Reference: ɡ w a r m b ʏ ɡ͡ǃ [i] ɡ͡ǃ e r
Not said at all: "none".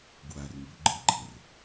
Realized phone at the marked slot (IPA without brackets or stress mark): ɨ